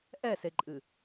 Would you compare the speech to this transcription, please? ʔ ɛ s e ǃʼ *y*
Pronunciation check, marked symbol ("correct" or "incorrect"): incorrect